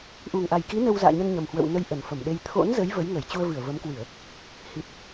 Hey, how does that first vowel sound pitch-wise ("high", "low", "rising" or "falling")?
low